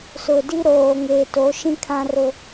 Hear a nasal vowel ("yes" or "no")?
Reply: yes